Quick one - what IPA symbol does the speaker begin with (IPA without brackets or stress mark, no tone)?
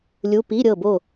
lʲ